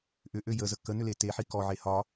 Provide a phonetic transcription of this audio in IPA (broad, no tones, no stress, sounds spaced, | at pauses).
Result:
ʔ ʏ ʔ ø j ə z ə k ə n ʏ l e t e ħ i k ɔ ʕ e h ɒ